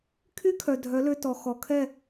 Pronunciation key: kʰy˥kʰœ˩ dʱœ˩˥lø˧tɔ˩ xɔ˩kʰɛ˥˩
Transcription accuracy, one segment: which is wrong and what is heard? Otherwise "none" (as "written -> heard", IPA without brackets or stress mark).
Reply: none